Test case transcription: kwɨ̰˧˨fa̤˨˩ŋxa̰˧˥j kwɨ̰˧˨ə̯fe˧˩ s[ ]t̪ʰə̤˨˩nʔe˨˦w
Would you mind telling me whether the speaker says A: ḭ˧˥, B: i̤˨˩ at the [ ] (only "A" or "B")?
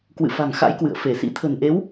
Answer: A